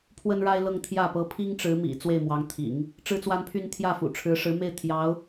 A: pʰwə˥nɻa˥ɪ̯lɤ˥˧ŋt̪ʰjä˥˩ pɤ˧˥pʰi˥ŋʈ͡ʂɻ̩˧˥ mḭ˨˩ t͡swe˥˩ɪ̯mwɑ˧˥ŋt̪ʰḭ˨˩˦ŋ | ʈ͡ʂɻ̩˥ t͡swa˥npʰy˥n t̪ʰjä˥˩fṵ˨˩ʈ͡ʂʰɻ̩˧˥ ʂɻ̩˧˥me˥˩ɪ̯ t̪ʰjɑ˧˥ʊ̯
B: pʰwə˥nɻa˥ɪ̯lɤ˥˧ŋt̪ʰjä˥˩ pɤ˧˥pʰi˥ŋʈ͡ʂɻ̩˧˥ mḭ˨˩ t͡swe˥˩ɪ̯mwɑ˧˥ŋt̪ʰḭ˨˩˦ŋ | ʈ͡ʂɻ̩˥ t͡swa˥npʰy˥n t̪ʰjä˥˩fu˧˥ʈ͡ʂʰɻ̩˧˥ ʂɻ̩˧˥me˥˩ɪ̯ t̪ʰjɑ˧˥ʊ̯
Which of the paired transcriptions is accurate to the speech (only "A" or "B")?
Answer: A